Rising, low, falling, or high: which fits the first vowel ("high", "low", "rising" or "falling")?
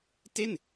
falling